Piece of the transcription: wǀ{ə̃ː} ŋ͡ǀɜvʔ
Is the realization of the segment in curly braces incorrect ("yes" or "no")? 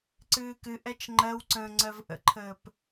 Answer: no